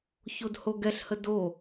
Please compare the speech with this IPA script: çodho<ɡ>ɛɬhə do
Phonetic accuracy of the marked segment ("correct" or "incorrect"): correct